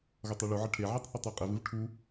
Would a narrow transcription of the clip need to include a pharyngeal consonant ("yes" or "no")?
yes